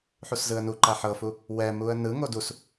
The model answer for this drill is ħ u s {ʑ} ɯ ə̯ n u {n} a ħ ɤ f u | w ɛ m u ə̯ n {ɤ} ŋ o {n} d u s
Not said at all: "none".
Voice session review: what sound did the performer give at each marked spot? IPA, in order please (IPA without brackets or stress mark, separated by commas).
z, ǃ, ɯ, none